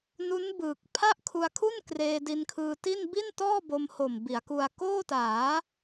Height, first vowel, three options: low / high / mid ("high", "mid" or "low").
high